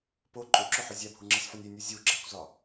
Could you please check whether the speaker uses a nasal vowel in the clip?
no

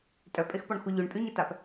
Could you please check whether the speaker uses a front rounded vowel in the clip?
yes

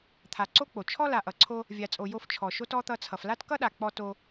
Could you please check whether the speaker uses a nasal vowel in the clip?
no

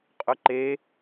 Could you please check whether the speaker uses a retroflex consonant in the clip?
no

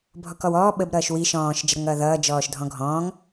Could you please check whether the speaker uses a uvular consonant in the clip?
no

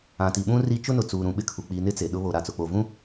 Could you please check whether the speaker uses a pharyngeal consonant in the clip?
no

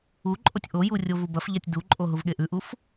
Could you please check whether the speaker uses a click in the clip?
yes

